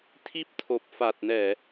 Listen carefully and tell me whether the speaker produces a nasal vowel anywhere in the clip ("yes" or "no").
no